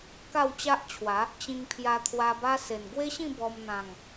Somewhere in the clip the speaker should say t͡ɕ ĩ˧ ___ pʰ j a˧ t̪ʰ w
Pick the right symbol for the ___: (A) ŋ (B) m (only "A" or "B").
A